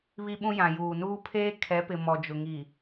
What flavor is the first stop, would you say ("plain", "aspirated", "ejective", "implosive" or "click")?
implosive